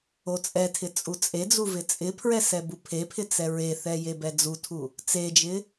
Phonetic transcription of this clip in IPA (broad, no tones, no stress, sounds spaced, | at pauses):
o t͡sʼ ɛ tʰ ɪ t͡sʼ u t͡sʼ e d͡z u v ɪ t͡sʼ ɪ pʰ ɹ ɛ s ɛ b u pʰ e pʰ ɪ t͡s ɛ ɹ e θ ɛ j e b ɛ d͡z u tʰ u | t͡s e d͡ʒ ɪ